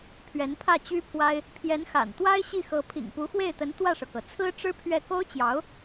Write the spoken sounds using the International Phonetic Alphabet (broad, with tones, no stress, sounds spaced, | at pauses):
pʰ ɥ ɛ˧˥ n pʰ ä˥˩ t͡ɕ y˥ pʰ w a˥ ɪ̯ | pʰ j ɛ˧˥ n x a̰˨˩ n t̪ w a˥ ɪ̯ ɕ i˥˩ x ɤ˧˥ pʰ ḭ˨˩ ŋ p u˧˥ x w e˥˩ ɪ̯ t̪ ə˧˥ n t̪ w ä˥˩ ʂ ɤ˩ k ɤ˩ t͡sʰ ɹ̩˥ ʈ͡ʂ ɻ̩˥ pʰ ɥ ɛ˥˩ k o˥ ʊ̯ t͡ɕ j ɑ˧˥ ʊ̯